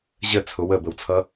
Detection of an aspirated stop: present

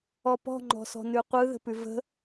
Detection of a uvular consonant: present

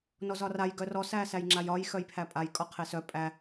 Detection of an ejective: present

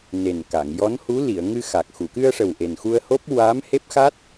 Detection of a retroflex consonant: present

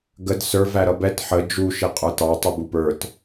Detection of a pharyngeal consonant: present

